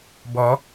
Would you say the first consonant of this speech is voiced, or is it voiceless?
voiced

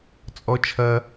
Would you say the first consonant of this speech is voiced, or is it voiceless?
voiceless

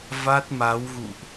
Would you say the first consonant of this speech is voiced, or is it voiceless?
voiced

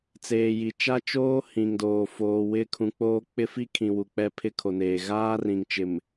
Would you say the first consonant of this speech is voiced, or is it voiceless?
voiceless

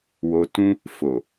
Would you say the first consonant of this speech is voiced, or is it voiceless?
voiced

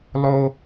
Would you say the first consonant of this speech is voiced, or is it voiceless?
voiced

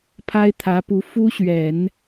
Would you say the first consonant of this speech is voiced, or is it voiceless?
voiceless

